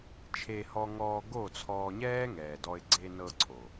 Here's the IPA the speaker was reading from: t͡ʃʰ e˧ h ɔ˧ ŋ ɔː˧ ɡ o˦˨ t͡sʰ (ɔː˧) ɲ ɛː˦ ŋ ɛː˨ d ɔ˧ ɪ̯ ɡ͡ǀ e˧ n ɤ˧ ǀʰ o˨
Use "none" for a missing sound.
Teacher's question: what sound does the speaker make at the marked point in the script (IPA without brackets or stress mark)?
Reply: ɔː˧